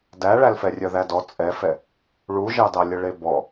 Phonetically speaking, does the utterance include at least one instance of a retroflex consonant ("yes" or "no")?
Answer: yes